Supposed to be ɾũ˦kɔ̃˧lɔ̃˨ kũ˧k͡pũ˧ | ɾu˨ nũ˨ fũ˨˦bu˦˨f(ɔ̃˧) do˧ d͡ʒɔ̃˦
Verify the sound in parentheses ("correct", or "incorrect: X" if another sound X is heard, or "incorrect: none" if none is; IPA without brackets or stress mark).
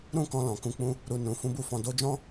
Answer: correct